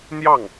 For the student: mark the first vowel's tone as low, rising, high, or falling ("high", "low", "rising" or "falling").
falling